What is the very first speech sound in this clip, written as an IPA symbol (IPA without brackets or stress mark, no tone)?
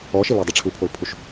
ɔ